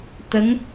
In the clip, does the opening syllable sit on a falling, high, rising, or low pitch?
rising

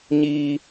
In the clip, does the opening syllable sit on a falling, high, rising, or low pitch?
high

